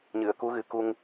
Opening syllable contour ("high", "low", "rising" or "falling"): low